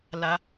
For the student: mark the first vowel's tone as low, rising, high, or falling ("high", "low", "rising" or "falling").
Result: rising